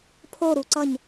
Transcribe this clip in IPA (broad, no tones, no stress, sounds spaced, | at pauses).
pʰ o ɾ u ǀ ʌ ɲ